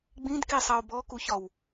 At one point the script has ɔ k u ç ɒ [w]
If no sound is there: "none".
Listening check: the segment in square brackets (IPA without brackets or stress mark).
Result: w